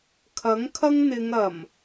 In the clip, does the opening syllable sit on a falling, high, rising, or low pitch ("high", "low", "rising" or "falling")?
rising